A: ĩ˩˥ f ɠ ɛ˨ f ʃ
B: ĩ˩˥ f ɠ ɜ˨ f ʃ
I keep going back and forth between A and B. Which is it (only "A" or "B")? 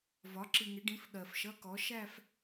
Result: B